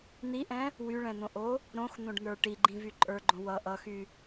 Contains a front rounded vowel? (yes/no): yes